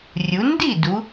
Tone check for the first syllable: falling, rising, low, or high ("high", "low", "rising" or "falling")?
rising